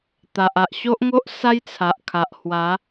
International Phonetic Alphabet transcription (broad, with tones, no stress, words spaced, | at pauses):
t̪a˨ʔa˨ʔɕo˦ʔŋo˦ʔ sa˦jt͡sʰa˨ʔkʰa˨ʔ hwa˨˦